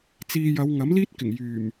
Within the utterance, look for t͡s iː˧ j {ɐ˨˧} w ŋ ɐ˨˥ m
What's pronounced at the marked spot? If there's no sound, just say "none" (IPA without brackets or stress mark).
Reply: ɐ˨˧